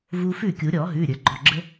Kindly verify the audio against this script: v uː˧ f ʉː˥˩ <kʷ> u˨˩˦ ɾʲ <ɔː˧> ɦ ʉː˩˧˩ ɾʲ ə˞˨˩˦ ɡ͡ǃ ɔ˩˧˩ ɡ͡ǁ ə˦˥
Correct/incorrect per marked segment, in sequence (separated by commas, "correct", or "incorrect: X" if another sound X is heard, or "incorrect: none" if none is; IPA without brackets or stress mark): incorrect: kʲ, incorrect: ɔː˨˩˦